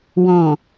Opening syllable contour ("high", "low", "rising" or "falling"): low